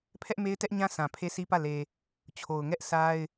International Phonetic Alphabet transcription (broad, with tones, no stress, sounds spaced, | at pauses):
pʰ ɛ˦ ʔ m e˦ ɪ̯ t ɛ˦ ʔ ɲ ã˦ sʰ ã˨ pʰ e˦ s i˦ p ä˦˨ l e˨ | t͡ɕʰ o˨ ʊ̯ ŋ ɛ˦ ʔ s a˦ ɪ̯